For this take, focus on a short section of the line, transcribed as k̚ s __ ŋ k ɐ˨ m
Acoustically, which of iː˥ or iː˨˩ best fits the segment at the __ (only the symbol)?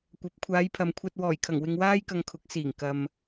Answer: iː˨˩